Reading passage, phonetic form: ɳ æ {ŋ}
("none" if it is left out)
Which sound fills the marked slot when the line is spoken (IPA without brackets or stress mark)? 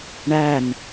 n